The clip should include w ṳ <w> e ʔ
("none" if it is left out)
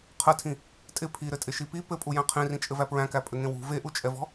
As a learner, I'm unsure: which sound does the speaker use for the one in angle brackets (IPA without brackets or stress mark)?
v